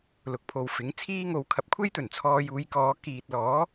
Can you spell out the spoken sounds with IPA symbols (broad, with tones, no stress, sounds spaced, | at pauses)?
l ʊ˨ k̚ pʰ o˨ w f ɪ˨˥ ŋ t͡sʰ iː˥ ŋ o˧ w kʰ ɐ˨ p̚ kʷʰ e˥ j t̪ ɵ˨˩ n t͡sʰ ɔː˧ j uː˨˧ j k ɔː˨˧ k iː˨ t̚ l ɔː˨˥